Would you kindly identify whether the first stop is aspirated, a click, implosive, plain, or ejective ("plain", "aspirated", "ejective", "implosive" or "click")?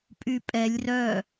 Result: ejective